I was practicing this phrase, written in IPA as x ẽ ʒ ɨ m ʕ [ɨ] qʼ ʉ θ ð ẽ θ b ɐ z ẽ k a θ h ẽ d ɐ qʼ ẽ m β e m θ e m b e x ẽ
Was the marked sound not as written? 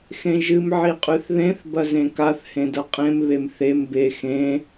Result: yes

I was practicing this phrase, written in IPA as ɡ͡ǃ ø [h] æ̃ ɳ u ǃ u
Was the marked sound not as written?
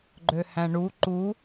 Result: no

